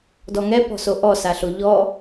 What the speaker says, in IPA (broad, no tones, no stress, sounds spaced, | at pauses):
d ɔ ŋ ɛ p ɔ̤ s o ʔ ɔ s a ɬ o ʎ ɔ